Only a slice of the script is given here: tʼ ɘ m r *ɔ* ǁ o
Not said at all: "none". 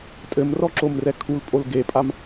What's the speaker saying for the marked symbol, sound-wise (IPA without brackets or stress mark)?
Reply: ɔ